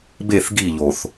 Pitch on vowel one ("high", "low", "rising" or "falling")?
falling